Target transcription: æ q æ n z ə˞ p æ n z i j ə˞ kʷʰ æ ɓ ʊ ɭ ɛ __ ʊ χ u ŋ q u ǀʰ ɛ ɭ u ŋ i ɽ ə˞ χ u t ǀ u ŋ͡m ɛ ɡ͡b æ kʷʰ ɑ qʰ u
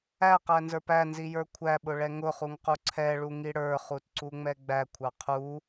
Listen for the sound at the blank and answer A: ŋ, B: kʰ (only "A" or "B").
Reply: A